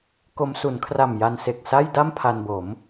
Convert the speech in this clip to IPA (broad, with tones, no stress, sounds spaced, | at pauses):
k o˧ m s u˩˦ n kʰ r a˨˩ m j a˧ n s e˨˩ k̚ s a˥˩ j d a˥˩ m pʰ a˧ n b o˩˦ m